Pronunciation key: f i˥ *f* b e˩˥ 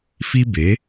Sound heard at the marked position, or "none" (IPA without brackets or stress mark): none